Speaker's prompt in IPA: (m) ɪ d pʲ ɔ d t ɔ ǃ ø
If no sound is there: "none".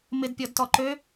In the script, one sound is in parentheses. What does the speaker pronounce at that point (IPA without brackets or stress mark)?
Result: m